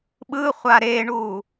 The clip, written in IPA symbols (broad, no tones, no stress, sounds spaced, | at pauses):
ɓ ɯ χʷ a ɾ e ɳ u